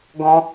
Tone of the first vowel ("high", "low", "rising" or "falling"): high